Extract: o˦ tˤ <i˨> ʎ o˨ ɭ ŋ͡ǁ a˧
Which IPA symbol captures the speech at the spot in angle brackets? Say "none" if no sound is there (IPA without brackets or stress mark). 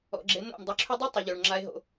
i˨